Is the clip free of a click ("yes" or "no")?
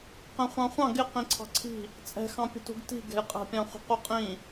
no